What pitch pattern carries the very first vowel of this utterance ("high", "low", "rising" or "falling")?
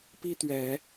high